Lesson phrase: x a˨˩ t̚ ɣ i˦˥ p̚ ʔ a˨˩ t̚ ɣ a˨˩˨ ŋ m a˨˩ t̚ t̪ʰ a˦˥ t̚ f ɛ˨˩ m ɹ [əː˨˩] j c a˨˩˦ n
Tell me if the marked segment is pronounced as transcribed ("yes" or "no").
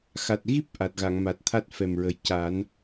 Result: no